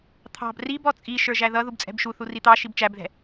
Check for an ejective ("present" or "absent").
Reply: present